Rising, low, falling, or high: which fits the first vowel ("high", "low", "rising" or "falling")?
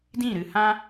falling